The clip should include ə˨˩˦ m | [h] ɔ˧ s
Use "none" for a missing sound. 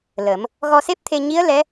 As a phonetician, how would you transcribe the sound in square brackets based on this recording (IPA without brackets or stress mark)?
ɣ